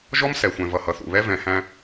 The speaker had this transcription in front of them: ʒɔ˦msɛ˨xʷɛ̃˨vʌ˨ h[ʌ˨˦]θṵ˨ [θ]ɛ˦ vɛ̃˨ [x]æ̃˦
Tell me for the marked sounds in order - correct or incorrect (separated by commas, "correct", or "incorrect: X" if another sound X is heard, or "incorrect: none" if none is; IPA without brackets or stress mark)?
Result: incorrect: ʌ˨, incorrect: β, incorrect: h